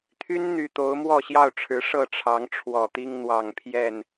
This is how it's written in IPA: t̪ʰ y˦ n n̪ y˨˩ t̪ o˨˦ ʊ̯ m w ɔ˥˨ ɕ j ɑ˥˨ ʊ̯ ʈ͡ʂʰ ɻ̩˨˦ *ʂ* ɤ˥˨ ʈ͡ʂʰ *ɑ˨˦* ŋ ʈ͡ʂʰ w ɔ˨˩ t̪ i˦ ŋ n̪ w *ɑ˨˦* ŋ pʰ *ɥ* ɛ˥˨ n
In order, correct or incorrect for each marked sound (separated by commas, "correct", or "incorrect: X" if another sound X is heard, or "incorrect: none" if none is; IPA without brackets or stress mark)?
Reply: correct, correct, incorrect: ɑ˨˩, incorrect: j